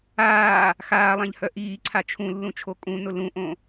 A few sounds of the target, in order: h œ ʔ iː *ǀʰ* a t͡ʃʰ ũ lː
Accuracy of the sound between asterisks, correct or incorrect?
correct